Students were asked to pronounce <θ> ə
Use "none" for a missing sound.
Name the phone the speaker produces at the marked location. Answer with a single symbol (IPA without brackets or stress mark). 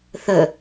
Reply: θ